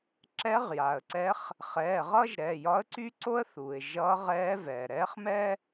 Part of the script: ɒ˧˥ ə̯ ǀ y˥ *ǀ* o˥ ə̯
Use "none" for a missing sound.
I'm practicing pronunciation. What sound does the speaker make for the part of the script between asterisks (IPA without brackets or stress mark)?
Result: ǀ